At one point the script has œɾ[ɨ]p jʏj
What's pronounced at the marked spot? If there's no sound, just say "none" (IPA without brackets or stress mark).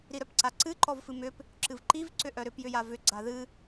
ʏ